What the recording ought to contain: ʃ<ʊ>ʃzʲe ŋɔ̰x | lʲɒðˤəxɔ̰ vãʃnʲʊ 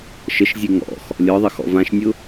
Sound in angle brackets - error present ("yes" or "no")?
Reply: yes